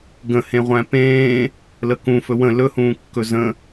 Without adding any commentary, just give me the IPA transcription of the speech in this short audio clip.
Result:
ɡ ə̃ h ẽ ʁʷ æ̃ p ẽː | l ə k ũ f ɵ w ə̃ l ɵ h ũː kː ɵ z ə̃

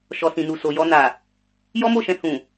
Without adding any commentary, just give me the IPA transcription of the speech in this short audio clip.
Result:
ʃ ɔ˨ s ĩ˨ n u˨ s o˨ j ɔ˧ n a˨ | j ɔ˦ m o˦˨ ʃ ɛ̃˧ h ũ˨

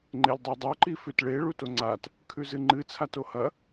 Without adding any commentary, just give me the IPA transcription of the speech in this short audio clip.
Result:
ŋ͡ǃ e lʲ dˤ e dˤ o ǃ i f ʉ t ɭ e ɭ u t o ŋ͡ǀ a t | kʰ ʉ z ɨ ŋ͡ǃ ɨ t͡sʰ a t o h ɐ

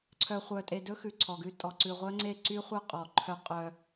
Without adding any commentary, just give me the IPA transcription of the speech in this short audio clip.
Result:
ǀʰ œ˨ χʷ œ˨ tʼ e˨ d ɵ˦ x ʉ˨ ǀʰ ɔ˨ ɡ ʉ˦ tʼ ɔ˨ ǀ ʉ˨ ʁʷ œ˦ ŋ͡ǀ e˦˨ ǀ y˦ χʷ œ˦ qʼ ɔ˨ ǃʰ œ˦ qʼ œ˦

